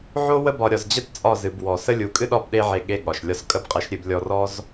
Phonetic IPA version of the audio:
ʕ o˧ w ə˧ b ɒ˨ ɾʲ ɒ˨ z d͡ʑ ə˦ t t͡sʼ ɒ˦˨ z ɨ˨ b w ɔ˨ s ə˦ lʲ u˨ kʼ ɨ˦ ɗ ɒ˦˨ b ɗ e˧ ʕ e˨ ɠ e˧ ɠ ɒ˨ ʃ lʲ ɒ˦ s kʼ ə˦ b qʼ e˧ ʃ ɾʲ ɨ˦˨ b lʲ ɔ˧ r ɔ˦ z

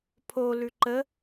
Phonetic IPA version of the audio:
pʰ o l ʉ ǃ ə

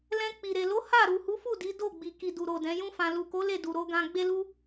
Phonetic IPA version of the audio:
l ɛ̃˧ k͡p i˨ ɾ e˨ l o˨˦ h a˦˨ ɾ u˨ h u˨˦ f u˦˨ d i˨˦ d o˦˨ ɡ͡b i˨ k i˨ d u˨ ɾ o˨ d ɛ̃˨˦ j ũ˦ f ã˧ l u˨ k o˨˦ l e˦˨ d u˨ ɾ o˧ ɡ ã˧ ɡ͡b e˧ l u˧

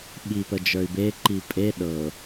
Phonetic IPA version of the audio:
ɓ i p ə d͡ʒ ə˞ y̯ b e ǃ i pʼ e ɗ ɤ

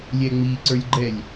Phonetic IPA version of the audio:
lʲ ɛ ŋ͡m i ǀ ə˞ lʲ ɡ͡ǃ ɛ lʲ

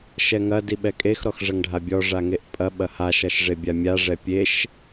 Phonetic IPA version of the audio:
ʃ ɛ ŋ ɐ d i ɓ ɛ kʼ e x ɾ ɔ x ʐ ɐ ŋ ɖʱ a bʲ ɔ ʐ a ŋ e ʔ pʼ ɐ ɓ ɐ h a ʃ ɐ ʃ ʐ e bʲ a mʲ a ʐ ɛ pʲ e ʃ

